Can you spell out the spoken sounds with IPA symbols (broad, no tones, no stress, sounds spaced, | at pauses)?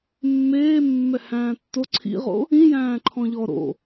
mː eː mː ɛ h æ̃ː tː o ǀʰ ḭ ʁ o̰ | ĩ j æ̃ː ǃʰ ɔ̃ ʎ ɔ ɾ o̰